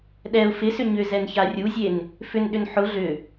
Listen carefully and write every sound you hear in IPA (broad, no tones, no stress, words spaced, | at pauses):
ɗɛʊ̯ fɪsʏ ɲʏzɛnça rʲuzʲen | fʏnɗʏn ħʊ ɮʏ